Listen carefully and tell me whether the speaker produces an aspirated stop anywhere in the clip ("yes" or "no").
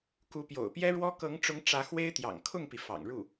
yes